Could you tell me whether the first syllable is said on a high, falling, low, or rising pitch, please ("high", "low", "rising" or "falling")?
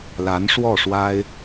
rising